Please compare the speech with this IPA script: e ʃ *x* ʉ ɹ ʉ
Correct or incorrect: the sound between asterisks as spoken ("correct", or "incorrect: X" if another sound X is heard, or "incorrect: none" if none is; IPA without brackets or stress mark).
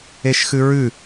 correct